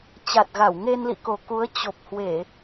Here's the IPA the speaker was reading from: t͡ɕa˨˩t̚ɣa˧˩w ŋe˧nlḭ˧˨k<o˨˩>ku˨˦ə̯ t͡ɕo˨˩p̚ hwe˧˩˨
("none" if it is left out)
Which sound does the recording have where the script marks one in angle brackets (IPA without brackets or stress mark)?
o˨˩